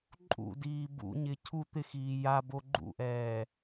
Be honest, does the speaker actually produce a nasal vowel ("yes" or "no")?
no